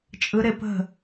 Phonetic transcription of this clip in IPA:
t͡ʃʼ ɯ˦˥ ɾ ɪ˦˥ p ə̤˥˨

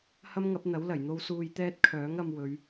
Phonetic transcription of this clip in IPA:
h ɐ˥ m ŋ ɐ˨˥ p̚ n̪ ɐ˨˥ w l ɐ˨˩ j n̪ o˧ w s uː˧ j t̪ ɛː˥ t̚ kʰ œː˨˥ ŋ ɐ˧ m w ɵ˨˧ ɥ

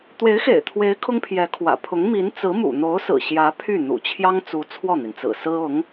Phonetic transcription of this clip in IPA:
t̪ w e˧˥ ɪ̯ x ḛ˨˩ ɪ̯ t̪ʰ w e˧˥ ɪ̯ kʰ ʊ˥ ŋ pʰ j ɛ˧˥ kʰ w ä̰˨˩ pʰ ʊ˧˥ ŋ m i˧˥ n t͡s ɹ̩˧˥ m ṵ˨˩ n̪ o˧˥ ʊ̯ s ɹ̩˨˩ ɕ j ä˧˥ pʰ y˥˩ n̪ ṵ˨˩ t͡ɕʰ j ɑ˥ ŋ t͡s u˧˥ t͡sʰ w ɔ˥˩ n̪ i˩ n t͡s ɹ̩˨˩ s ɹ̩˥ ʊ˧˥ ŋ

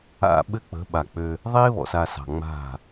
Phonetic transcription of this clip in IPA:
a̰˨ ɓ ɘ˦ k͡p ə̤˨˦ ɓ a˨ k͡p ø˦ | ðˤ e˦ β ɔ̰˨ s a˨ s ɑ̤˨ ŋ͡m a̤˦˨

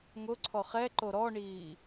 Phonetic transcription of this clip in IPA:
ŋ ʊ ǀʰ ɔ χ ɛ ǃ o ɾ ɔ ɳ iː

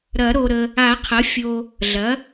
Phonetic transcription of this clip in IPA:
ɾ ɐ˨˩˦ ɾ o˨ ɾ ə˨ | a˨˩˦ qʰ ɐ˩˥ fʲ o˨ | ɮ ɐ˩˥

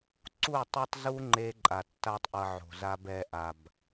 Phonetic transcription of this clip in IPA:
ǀ u˦˨ tˤ o˦ tˤ z u˦ ŋ͡ǃ e˦ ǃʼ a˨ tː a˦ tˤ ʔ ʌ˧ ʕ o̤˨ z a˦ b ɛ˧ ʔ a˨ b

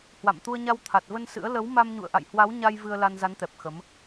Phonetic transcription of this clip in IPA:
h w a̰˧˨ m t̪ u˧ ə̯ ɲ a˧ w t̪ʰ a˨˩ t̚ v ə˧ n s ɨ̰˧˥ ə̯ l ə˨˦ w m a˧ m ɲ ṵ˧˨ ə̯ ʔ a̰˧˨ j h w a˨˦ w ɲ a˧ j v ɨ˧ ə̯ l a˧ n z a˨˦ n t̪ ɛ˨˩ p̚ x ə˨˦ m

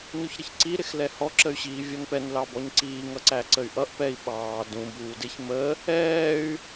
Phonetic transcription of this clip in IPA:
n u ç ɾ ə ç ǀ i ɾ ɪ x l ɛ h ɔ ǁ ə y̯ ɕ iː vʲ ɔ n p ɛ n l ɑ b ɔ ɲ ǀ iː ŋ ʌ ǀ æ ǀ ə y̯ ʔ ʌ ʔ p ɛ i̯ ɓ ɑː d ũ b uː d ɪ ç m ə | ɛː y̯

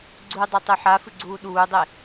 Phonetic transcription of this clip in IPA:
ɡ͡ǀ u dˤ ɛ tˤ ø ħ a f ɨ ɡ͡ǀ uː ɗ uː dˤ e

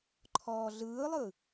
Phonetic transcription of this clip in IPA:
ǃʰ ɔː ɮ ɯː lˠ ɯ

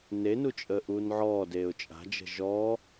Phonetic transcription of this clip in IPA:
n e n u t͡ʃʼ əː ʔ uː n ʕ ɔː d eː ʊ̯ t͡ʃʼ a̤ d͡ʒ ə̤ ʒ ɔː

